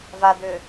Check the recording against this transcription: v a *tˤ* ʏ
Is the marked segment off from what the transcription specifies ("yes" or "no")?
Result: yes